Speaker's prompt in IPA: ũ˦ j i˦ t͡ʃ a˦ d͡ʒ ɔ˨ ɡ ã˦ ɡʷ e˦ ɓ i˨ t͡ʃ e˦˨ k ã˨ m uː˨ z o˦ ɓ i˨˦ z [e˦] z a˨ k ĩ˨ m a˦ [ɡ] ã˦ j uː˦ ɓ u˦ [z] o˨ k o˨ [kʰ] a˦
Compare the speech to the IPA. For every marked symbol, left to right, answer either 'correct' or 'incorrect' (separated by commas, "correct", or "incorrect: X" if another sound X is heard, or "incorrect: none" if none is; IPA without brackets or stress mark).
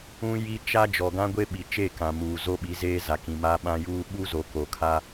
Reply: incorrect: eː˦, incorrect: ɓ, correct, correct